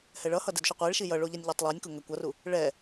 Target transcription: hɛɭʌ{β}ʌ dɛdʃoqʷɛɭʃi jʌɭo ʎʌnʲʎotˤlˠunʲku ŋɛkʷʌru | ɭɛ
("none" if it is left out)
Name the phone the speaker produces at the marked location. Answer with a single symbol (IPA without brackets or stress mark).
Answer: h